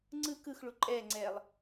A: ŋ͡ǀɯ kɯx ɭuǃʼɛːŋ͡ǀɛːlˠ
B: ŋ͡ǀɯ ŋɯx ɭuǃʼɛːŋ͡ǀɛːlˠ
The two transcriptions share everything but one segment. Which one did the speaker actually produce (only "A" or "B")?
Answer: A